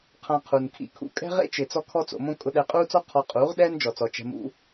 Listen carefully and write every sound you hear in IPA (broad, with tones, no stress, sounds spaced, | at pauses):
qʰ ã˧ qʰ u˨ n kʰ ḭ˦˨ kʰ ṵ˦ kʼ ɛ̤˦ ʁ ḛ˦ t͡ʃ ɪː˨ t͡s ɔ˦ kʰ ɔ˦ t͡s o̰˧ m õ˦ kʼ ʊ˧ ɗ ɛ˧ qʼ uː˦ t͡s ɔ˦ qʰ ɔ˧ qʼ uː˨˦ ʁ ɗ ɛː˦ n d͡ʒ ɔ˨ t͡s ɔ˨ t͡ʃ ɛ̤˧ m ṵ˦